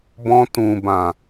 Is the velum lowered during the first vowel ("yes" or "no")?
yes